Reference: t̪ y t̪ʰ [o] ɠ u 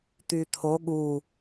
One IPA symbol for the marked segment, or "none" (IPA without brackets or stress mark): o